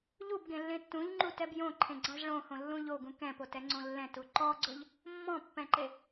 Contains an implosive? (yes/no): no